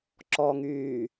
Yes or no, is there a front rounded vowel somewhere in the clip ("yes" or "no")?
yes